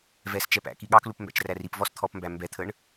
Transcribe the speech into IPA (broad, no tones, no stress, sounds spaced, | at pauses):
v ɛ s t͡ʃ ɛ p æ̰ k i ɠ ɑ k l u p m b æ̰ t͡ʃ r æ r i p v ɔ s t̪ʰ ɔ p m b æ m b ɛ t̪ʰ ə ɳ